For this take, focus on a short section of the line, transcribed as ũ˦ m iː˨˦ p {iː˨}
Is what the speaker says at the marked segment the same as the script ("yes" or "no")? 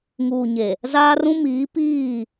no